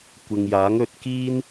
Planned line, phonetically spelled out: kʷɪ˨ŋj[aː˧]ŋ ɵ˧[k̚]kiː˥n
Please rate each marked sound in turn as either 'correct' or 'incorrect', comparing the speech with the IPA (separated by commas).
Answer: incorrect, incorrect